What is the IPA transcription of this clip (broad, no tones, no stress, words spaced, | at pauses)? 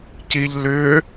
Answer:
ciʎ lʏː